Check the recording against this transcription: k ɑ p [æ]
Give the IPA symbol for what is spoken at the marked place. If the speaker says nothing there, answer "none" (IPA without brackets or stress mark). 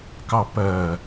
ɜ